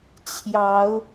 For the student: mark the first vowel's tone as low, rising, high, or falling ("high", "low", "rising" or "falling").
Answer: rising